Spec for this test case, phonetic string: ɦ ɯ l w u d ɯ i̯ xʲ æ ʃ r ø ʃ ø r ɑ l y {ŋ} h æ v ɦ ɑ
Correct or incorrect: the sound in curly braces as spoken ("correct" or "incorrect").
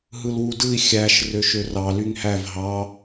correct